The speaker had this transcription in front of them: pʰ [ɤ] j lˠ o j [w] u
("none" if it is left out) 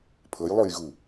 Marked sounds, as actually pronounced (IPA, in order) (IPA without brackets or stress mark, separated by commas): ɤ, ɣ